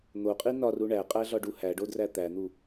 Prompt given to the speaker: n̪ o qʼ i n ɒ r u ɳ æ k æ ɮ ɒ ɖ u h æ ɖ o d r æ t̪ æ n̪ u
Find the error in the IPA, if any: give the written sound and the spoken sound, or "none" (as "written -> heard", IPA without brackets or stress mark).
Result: k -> qʼ